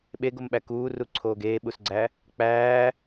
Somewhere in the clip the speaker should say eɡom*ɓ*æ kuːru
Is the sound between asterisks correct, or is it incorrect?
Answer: correct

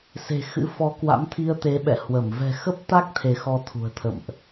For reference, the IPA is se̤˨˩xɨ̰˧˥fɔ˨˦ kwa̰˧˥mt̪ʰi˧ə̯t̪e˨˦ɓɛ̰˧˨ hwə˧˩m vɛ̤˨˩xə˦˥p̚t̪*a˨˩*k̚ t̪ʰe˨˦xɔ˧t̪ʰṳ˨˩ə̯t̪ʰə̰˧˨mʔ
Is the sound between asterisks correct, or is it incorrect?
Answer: incorrect: a˦˥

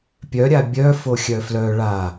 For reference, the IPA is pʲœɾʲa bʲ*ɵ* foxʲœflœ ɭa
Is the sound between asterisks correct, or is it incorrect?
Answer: incorrect: œ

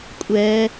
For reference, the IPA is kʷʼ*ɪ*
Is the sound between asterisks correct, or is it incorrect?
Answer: incorrect: ɛ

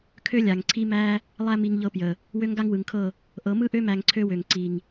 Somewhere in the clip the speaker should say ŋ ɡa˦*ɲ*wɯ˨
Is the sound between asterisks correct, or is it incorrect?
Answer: incorrect: ŋ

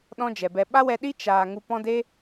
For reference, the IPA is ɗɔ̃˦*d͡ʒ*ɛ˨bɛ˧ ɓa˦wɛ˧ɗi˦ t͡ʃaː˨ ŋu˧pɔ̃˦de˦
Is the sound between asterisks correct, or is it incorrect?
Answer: correct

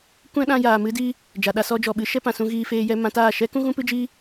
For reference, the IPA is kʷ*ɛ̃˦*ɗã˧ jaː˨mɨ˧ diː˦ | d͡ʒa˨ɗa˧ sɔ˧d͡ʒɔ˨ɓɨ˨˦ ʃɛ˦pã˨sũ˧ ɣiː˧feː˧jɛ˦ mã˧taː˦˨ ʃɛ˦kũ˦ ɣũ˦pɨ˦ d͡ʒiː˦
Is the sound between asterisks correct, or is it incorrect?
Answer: correct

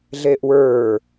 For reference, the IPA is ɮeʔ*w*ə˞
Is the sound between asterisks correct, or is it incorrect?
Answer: correct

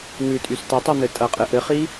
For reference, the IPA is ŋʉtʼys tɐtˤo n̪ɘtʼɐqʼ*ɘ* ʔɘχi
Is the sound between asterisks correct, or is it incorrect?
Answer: correct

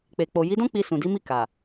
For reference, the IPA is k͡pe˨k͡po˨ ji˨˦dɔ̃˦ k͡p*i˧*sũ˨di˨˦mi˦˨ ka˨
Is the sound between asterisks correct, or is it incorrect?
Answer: correct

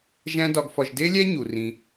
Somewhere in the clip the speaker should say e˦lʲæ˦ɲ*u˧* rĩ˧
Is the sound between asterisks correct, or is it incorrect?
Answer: incorrect: u˨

